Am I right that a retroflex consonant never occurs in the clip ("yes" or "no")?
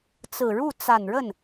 no